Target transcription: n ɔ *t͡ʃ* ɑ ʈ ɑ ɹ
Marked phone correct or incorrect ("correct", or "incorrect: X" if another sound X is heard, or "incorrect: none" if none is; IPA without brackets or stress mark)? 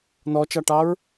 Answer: correct